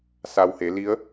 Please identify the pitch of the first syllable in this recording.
low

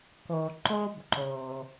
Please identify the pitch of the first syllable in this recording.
low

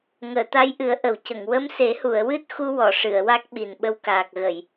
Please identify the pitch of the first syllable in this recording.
low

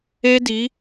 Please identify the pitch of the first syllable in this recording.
high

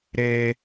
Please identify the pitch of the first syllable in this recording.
high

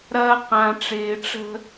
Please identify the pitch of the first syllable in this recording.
high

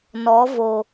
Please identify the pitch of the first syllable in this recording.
rising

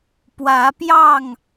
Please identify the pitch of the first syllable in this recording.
rising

